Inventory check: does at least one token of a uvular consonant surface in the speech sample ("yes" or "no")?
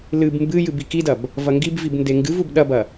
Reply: no